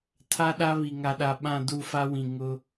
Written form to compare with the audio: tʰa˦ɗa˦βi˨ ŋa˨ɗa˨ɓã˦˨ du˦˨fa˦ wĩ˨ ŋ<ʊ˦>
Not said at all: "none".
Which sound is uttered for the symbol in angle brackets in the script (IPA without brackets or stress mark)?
ʊ˦